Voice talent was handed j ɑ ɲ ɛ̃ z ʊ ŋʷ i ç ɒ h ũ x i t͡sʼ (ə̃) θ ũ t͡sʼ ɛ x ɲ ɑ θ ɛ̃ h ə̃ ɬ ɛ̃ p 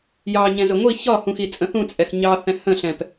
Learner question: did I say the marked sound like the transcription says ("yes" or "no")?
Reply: yes